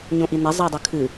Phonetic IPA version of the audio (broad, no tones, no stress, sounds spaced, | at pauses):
ɲ õ ʔ i n ɛ zˤ ɪː dˤ ɨ kʰ ɨ